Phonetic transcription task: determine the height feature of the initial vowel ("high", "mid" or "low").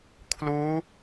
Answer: high